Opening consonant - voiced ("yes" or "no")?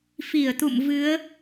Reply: no